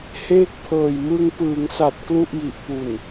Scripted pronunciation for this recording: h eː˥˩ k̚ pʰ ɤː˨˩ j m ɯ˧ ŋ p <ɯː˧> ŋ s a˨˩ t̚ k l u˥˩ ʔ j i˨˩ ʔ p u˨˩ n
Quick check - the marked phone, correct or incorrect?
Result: incorrect